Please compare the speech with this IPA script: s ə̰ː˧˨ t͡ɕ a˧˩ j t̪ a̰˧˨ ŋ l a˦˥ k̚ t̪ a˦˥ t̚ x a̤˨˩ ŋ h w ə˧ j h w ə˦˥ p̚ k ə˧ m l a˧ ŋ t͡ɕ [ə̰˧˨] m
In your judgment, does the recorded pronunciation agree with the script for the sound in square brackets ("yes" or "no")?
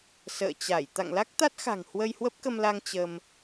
no